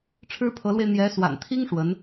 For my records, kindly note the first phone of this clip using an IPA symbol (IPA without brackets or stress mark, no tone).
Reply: ʈ͡ʂʰ